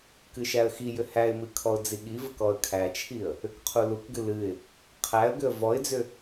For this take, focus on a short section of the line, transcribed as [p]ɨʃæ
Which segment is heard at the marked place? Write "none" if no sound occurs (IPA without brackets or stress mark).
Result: k